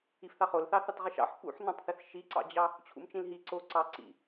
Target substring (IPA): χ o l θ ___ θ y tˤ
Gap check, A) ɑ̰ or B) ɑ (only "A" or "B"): B